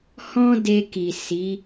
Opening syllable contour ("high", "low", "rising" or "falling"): high